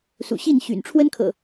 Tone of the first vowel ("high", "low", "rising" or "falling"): low